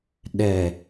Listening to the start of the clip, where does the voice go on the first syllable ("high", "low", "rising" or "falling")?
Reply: low